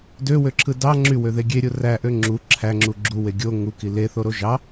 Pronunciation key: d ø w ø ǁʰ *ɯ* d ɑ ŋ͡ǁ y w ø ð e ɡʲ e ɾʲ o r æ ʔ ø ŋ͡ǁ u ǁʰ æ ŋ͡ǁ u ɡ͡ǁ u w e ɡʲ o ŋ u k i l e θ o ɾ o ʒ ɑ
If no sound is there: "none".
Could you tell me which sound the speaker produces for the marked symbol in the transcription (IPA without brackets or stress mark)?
ɯ